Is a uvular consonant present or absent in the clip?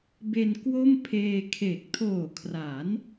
absent